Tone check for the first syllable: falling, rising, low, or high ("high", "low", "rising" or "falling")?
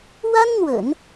high